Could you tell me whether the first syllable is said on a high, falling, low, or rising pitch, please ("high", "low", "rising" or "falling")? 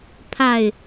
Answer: low